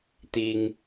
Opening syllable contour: low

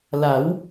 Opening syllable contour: rising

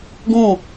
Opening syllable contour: falling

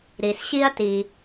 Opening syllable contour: low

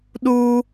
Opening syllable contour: high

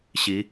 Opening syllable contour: rising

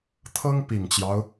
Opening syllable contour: high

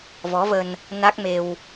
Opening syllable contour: rising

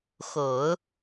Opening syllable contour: low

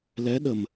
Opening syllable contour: rising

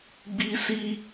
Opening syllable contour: high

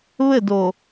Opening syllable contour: falling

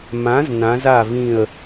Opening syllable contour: rising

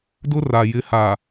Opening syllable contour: high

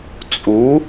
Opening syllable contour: rising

